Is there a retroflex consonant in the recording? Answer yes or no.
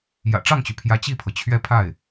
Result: yes